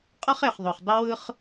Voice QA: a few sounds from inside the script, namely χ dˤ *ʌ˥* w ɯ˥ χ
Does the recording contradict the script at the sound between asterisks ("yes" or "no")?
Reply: no